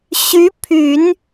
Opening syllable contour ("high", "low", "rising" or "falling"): rising